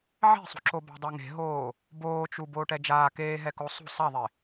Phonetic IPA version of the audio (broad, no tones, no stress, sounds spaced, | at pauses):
ʕ ɛ̤ sˤ ṳ ǁ o b a̤ dˤ o ŋ e̤ ɦ oː | b oː t͡ʃ u b oː ʈ ɛ d͡ʒ aː k eː ɦ ɛ k o sˤ ṳ sˤ a ðˤ e